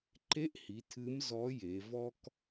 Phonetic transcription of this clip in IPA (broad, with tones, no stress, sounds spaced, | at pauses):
ǃ e˧˥ ʔ h i˩˧ tʰ ɨ˧˥ m z ɔ˧˥ j e˩˧ v ɔ˥ k